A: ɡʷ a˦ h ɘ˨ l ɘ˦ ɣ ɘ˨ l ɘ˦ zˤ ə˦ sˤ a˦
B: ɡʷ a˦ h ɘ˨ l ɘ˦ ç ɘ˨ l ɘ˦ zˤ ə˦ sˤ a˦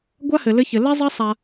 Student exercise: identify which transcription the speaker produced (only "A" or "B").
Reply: B